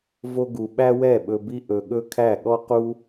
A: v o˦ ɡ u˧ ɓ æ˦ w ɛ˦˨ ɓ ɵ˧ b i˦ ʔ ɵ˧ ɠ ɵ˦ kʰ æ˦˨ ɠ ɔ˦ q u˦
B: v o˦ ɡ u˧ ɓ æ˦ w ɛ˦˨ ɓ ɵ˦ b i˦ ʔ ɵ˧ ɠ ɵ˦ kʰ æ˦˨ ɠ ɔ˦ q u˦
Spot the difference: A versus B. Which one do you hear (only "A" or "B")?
A